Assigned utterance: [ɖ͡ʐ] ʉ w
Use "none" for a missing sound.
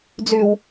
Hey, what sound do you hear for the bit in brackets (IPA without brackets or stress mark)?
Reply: d͡z